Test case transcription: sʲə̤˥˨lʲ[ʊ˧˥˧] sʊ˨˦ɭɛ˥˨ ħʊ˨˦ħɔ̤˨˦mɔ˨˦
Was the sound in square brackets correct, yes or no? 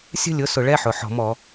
yes